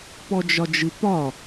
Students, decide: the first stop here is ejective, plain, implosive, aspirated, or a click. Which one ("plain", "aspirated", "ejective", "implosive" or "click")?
plain